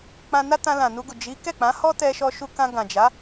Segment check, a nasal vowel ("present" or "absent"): present